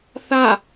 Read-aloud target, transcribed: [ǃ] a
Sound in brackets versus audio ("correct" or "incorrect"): incorrect